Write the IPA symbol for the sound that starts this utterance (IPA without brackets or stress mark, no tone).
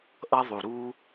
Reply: ʔ